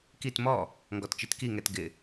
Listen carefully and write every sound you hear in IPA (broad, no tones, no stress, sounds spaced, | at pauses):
k i t m ɔ | ŋ ɡ ɔ t t͡ʃ i t k i ŋ ɛ t ɡ ɪ